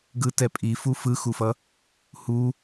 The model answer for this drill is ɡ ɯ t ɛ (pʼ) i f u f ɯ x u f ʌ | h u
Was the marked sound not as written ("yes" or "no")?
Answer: no